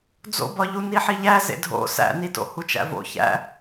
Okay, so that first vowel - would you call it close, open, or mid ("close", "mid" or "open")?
mid